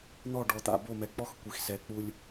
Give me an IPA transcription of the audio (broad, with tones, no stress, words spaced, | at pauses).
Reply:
n̪ɔ˦˨ɖɔ˨t̪a̰˨ bo˦˨mɛ˨ k͡pɔ˦x kʷi˨xsɛ˨ k͡pu˨lʲ